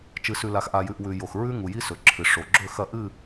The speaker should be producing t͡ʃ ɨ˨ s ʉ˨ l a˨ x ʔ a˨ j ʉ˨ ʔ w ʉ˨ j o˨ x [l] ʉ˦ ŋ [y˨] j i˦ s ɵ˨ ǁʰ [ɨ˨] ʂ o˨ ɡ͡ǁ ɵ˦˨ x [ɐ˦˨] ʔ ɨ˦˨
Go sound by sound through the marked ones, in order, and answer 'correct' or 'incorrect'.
incorrect, incorrect, correct, correct

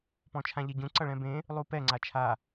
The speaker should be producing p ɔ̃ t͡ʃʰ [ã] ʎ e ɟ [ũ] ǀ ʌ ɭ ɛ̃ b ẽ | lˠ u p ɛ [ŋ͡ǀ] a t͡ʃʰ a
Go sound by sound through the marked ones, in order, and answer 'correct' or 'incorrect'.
correct, correct, correct

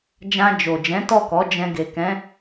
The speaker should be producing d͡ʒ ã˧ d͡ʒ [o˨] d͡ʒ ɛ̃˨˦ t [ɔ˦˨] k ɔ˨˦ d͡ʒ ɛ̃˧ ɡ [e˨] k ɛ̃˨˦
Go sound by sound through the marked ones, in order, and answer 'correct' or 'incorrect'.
correct, correct, correct

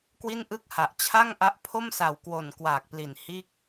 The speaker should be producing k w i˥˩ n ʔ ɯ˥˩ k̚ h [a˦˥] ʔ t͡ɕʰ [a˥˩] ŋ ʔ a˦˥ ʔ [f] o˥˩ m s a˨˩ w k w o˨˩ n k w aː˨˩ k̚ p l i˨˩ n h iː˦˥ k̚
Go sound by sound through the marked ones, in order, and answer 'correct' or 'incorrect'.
incorrect, correct, incorrect

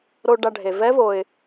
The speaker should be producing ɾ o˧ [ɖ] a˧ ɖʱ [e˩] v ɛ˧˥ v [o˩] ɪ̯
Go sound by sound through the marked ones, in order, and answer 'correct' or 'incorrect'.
correct, correct, correct

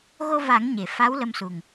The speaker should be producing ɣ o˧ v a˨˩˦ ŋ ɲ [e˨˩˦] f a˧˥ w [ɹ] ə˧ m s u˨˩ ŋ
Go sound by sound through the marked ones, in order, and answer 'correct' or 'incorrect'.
incorrect, incorrect

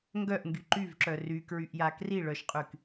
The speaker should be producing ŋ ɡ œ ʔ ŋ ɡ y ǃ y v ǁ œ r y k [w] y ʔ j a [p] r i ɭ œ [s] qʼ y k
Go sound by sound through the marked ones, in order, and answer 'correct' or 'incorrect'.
incorrect, incorrect, incorrect

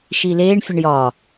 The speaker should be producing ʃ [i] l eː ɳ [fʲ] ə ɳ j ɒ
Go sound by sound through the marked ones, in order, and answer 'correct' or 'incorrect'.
correct, correct

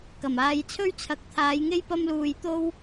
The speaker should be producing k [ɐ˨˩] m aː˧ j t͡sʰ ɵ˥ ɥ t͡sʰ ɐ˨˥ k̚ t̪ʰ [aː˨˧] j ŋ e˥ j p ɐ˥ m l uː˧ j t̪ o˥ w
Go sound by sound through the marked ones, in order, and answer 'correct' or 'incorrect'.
correct, correct

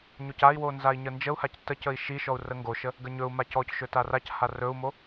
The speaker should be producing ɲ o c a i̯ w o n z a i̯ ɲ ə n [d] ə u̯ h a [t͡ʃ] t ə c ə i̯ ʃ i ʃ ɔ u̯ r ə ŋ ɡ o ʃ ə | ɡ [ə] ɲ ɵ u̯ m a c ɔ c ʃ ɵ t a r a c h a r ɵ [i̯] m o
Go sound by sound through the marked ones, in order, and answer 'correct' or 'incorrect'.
incorrect, incorrect, correct, incorrect

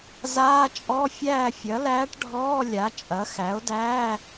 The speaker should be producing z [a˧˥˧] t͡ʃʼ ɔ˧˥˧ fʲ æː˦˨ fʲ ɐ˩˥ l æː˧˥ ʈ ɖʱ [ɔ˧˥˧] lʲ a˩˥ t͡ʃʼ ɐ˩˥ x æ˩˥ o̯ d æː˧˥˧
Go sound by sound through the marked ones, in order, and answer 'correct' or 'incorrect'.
incorrect, incorrect

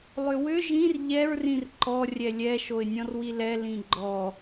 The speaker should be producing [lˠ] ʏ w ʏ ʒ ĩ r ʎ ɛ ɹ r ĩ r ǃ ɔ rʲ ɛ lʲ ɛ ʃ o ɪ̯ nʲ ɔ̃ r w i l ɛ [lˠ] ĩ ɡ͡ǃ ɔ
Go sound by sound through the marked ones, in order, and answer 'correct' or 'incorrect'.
correct, incorrect

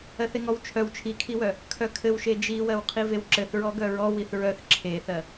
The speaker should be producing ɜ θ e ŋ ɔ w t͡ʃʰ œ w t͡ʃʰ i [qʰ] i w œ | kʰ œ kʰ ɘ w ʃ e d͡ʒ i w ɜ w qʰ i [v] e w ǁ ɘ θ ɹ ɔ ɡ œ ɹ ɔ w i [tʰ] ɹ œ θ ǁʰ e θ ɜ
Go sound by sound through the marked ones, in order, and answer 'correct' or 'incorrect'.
incorrect, correct, incorrect

